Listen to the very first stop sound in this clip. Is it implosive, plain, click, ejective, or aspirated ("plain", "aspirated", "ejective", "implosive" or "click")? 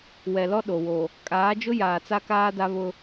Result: implosive